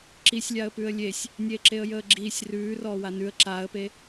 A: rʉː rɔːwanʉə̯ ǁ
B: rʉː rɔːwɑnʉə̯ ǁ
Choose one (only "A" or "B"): A